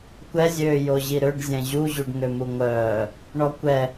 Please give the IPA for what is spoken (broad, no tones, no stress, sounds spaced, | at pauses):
kʷ ɛ zʲ øː j o ʑ i ɾ ø ɖ zʲ ɛ̃ ʑ u ʑ u ɖ ŋ ø m u ŋʷ œː | ɳ ɔ kʷ ɛ